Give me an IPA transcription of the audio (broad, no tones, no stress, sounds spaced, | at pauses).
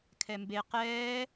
kʰ ɛ m b e q ɛː